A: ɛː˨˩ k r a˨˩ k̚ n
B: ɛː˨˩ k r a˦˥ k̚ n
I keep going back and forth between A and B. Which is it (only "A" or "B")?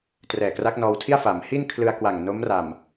B